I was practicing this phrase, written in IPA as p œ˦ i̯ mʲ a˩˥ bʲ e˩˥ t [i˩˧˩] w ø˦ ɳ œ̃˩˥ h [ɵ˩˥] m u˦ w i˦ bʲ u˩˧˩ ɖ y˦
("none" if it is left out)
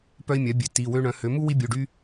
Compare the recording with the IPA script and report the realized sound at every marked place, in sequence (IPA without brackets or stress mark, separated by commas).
i˩˧˩, ø˩˥